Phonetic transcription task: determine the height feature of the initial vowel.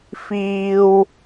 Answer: high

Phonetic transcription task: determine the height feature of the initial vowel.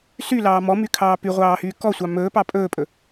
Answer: high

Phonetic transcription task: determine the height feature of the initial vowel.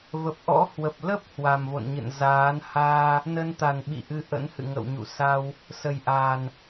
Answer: mid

